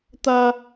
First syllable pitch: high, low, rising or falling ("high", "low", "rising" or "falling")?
high